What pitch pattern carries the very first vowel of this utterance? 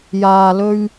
low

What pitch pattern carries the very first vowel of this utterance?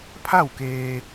falling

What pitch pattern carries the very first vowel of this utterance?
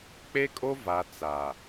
high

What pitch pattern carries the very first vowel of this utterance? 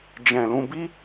low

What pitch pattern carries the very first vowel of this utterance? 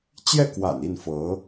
falling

